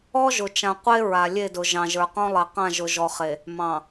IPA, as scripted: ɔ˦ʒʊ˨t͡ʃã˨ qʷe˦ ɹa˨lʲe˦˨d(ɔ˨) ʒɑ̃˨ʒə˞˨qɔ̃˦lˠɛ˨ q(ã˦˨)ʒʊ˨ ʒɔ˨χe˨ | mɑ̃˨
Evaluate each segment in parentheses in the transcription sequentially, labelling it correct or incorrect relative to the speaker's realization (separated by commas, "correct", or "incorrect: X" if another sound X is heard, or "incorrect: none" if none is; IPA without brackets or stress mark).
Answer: incorrect: ʊ˨, correct